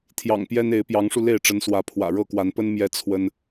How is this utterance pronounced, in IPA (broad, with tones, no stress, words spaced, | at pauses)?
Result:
t̪ʰjɑ̰˨˩ŋpjɛ˦ne˨˦ɪ̯ pjɑ˨˦ŋʂu˧le˥˨ɪ̯ ʈ͡ʂə˨˦nswä˨˦ pʰwä̰˨˩ ɻɤ˥˨kwa˨˦npə˦n mjɛ˦ t͡sʰwə˦n